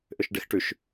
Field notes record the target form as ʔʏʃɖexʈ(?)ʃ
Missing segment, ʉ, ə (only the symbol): ʉ